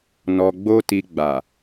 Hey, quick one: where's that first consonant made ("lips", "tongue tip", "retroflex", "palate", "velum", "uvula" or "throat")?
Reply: tongue tip